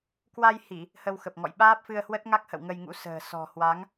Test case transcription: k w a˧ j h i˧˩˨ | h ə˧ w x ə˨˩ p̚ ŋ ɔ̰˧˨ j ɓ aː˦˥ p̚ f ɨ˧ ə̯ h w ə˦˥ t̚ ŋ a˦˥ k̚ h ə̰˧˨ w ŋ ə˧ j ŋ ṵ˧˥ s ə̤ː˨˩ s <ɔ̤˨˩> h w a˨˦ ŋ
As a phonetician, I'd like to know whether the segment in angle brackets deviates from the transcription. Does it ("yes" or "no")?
no